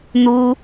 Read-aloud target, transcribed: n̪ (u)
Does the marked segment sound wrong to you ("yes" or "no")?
no